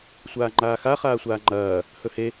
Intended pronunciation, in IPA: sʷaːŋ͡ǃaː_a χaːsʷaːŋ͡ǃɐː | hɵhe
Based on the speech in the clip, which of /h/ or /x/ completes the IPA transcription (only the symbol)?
x